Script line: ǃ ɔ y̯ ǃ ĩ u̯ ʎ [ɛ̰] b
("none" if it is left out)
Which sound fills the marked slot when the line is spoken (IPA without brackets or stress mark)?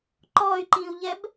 ɛ